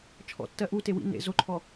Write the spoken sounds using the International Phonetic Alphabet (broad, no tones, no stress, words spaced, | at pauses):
t͡ʃʰɔ̰tːɜ ʔute wḭ nḛ zoǃʰɔ